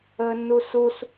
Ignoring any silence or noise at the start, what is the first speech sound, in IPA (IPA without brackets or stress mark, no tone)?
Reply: əː